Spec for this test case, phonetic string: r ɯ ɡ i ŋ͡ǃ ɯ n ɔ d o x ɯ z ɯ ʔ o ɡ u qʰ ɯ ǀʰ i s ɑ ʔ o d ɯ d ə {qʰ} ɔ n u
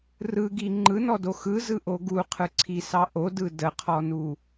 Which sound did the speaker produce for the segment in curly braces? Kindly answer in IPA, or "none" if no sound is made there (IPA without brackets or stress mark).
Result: qʰ